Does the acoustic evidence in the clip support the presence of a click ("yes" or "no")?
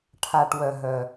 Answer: no